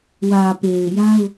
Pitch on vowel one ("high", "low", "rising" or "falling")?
low